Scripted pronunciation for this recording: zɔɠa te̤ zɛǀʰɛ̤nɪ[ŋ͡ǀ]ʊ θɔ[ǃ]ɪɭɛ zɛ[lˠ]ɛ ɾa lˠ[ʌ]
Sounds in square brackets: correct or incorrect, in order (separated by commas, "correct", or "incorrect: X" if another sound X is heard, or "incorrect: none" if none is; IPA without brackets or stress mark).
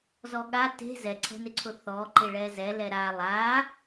incorrect: ǀʰ, correct, incorrect: l, incorrect: a